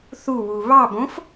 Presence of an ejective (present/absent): absent